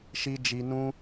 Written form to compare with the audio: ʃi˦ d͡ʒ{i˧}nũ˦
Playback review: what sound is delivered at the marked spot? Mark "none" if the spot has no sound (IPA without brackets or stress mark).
i˧